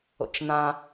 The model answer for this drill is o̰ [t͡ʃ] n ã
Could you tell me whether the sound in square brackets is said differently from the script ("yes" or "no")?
no